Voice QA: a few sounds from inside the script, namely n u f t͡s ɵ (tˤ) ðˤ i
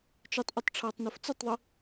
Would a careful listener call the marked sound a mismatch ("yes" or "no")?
no